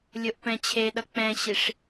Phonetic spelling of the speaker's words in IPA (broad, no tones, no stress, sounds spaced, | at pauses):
lʲ o ʔ p ɛ̃ t͡ɕʰ e ɗ ʌ k͡p ɛ̃ ɕ i ʂ